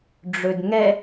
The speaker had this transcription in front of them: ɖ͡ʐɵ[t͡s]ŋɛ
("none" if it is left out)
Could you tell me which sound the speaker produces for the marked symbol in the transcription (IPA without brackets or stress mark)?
d